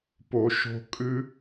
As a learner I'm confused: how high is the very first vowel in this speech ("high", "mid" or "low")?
mid